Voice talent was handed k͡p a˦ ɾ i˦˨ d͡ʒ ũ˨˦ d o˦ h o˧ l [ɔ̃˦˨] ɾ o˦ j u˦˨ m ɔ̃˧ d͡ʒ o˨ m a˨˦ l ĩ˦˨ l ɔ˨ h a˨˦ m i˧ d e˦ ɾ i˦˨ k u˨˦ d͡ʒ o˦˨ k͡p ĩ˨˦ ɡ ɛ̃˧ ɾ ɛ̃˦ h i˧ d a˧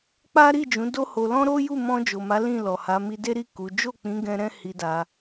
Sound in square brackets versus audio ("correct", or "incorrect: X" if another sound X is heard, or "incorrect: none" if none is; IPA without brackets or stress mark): incorrect: ɔ̃˦